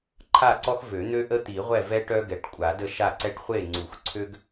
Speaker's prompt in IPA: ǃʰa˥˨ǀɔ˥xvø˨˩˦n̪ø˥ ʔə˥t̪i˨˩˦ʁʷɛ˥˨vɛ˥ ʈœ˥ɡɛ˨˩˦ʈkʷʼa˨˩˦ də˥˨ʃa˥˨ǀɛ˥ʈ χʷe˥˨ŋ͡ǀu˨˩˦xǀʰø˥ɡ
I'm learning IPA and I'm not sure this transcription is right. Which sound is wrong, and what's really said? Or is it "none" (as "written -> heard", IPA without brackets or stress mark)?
none